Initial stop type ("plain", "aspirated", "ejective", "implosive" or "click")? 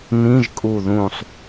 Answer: ejective